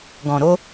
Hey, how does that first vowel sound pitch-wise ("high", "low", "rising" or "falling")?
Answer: low